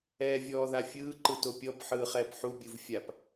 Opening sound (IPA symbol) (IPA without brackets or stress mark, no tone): ɛː